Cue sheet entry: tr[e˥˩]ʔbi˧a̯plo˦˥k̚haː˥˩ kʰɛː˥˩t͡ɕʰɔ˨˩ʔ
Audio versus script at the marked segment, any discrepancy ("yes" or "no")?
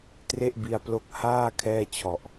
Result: no